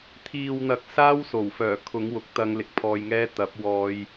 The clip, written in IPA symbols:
t̪ʰiː˨wn̪ɐ˨k̚ saː˥wso˨˩wfœː˨˩kʰʊ˨˥ŋ wʊ˨˥k̚ t̪ɐ˨˧ŋlɪ˨k̚ pʰɔː˧jŋɛː˥ t̪ɐ˨˥p̚wɔː˧j

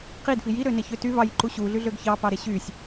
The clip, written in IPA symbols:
qidfi jiɾøneçø ty vɑjǃu ɕuɮyɮøɡ çɑpɑɾe ɕysʲ

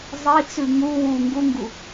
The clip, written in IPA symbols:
zˤit͡sʉ ŋu wu ŋɡuŋɡu

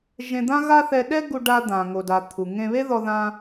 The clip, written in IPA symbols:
ʒẽ˧d̪ã˥ɣa˥θɛ˧ ɗɛ˥ɡu˧ɖa˧ d̪ã˩ ŋo˩da˩ t̪ʰu˩ŋẽ˧ βe˥ðɔ˧ðã˧

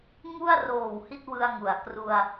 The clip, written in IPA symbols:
ŋu˥˩a̯roː˨˩w hi˥˩t̚wɯ˧a̯ŋu˩˦a̯ kru˧a̯

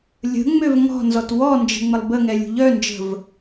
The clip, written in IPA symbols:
lʲə̤ŋ͡møv ŋɔ̤nzɔt wɔnd͡ʒə̤ŋ͡məlˠ bəŋɛlʲṳ ʎœnd͡ʒə̤v

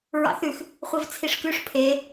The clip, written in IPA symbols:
ɹɑ̰θʉx | χʷivt͡sʰiʂkʉʂ pʰe

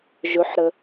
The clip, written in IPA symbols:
ʒɵħɾə

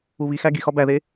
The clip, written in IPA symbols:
uβixæ ɡixɒ bæðe

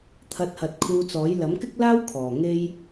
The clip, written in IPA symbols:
t̪ʰɐ˧t̚hɐ˨t̚ kʰuː˧t͡sɔː˨˥j lɐ˨˥mkɪ˥k̚laː˥w kʰɔː˨˩ŋe˧j

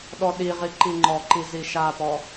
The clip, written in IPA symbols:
ɗɔɗiʁi ǃiŋ͡ǃɔǃi ziʃapɔ

